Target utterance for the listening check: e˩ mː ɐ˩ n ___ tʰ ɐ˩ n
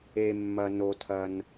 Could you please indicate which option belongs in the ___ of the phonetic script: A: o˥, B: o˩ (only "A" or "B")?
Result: B